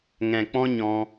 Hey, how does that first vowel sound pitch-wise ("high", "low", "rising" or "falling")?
low